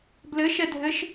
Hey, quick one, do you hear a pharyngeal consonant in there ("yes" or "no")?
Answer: no